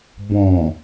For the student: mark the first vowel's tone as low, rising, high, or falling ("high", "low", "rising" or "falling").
low